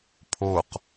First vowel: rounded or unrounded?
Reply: rounded